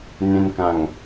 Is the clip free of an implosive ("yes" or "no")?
yes